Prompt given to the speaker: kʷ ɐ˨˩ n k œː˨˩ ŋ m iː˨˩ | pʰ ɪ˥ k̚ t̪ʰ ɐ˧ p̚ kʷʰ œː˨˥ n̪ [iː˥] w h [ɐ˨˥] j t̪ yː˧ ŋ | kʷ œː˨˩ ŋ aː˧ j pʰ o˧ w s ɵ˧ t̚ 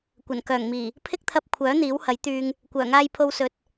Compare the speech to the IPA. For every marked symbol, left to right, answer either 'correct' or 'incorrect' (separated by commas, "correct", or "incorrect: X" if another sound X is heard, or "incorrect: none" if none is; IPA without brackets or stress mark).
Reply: incorrect: iː˨˥, correct